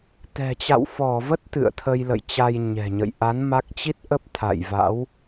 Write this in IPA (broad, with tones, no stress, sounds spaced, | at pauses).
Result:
t̪ ɛ̤˨˩ t͡ɕ a̰˧˨ w f ɔ˧˩ v ə˦˥ t̚ t̪ ɨ̰˧˨ ə̯ t̪ʰ ə˧ j l ə̰˧˨ j t͡ɕ a˧ j ɲ ɛ̤˨˩ ɲ ə̰˧˨ j ʔ a˨˦ n m a˦˥ k̚ t͡ɕ i˦˥ t̚ ʔ ə˦˥ p̚ t̪ʰ a̰˧˨ j v a̰˧˥ w